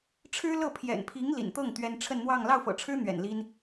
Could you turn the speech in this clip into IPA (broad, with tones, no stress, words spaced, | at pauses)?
ʈ͡ʂʰɻ̩˥lɤ˥˩ pʰjɛ̰˨˩npʰi˧˥ŋ lḭ˨˩nt̪ɤ˥˩ŋ t̪ɥɛ˥n ʈ͡ʂʰə˥˧nn̪wɑ˥˧ŋ lɑ˥˩ʊ̯fɤ̰˨˩ʈ͡ʂʰɻ̩˥ n̪ɥɛ̰˨˩nli˥n